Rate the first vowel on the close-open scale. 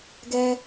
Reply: mid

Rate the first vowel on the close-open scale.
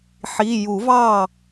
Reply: close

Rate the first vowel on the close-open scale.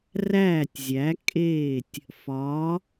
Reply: open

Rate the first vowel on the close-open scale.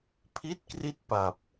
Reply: close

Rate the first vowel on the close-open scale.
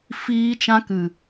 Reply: close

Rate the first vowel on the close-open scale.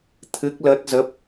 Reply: close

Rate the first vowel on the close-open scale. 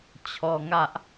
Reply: mid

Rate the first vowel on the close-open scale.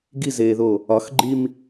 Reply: close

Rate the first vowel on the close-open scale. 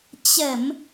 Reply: mid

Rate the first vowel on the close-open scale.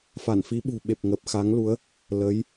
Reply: open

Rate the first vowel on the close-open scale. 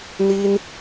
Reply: close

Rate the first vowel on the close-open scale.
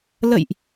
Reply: mid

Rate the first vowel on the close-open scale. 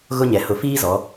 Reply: close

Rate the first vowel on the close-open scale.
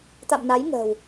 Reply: open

